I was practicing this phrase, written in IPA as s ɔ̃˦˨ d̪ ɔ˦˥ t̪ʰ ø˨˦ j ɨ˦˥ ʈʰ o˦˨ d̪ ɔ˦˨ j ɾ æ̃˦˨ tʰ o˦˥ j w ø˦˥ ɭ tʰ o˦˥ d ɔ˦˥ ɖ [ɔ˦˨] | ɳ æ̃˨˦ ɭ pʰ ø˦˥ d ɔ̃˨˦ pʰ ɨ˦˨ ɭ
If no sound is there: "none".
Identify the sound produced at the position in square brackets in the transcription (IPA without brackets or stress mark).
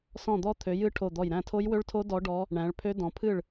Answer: ɔ˦˥